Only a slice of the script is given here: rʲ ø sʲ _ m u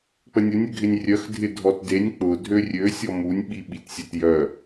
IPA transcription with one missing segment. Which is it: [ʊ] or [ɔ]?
ɔ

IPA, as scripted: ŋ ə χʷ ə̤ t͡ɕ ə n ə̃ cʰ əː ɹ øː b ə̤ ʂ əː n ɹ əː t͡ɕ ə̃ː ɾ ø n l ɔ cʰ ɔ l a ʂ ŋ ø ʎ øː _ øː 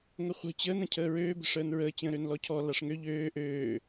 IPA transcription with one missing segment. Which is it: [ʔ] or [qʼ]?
ʔ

